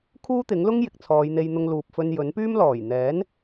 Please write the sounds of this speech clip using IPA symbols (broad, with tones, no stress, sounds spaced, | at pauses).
kʰ uː˥ t̪ ɪ˨˥ ŋ l ʊ˥ ŋ j ɪ˨ k̚ t͡sʰ ɔː˨˧ j n̪ e˧ j n̪ ʊ˧ ŋ l uː˨ p̚ f ɵ˧ n j ɵ˨˥ n p yː˥ m l ɔː˨˩ j n̪ ɛː˨˥ n